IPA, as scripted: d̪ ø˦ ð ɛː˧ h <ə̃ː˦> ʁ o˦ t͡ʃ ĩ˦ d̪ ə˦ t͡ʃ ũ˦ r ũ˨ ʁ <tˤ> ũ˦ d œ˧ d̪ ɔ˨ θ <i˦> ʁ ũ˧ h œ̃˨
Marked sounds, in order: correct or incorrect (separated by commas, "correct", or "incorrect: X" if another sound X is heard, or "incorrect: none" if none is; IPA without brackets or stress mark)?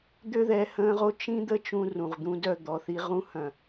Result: correct, incorrect: d̪, correct